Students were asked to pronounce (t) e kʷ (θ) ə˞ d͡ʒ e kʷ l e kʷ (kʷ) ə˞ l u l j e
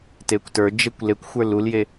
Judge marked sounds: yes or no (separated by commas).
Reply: yes, no, no